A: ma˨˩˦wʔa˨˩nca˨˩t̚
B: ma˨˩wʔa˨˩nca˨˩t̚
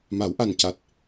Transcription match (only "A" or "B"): A